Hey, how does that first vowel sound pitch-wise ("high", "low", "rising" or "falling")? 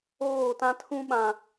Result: falling